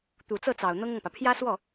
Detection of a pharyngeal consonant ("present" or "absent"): absent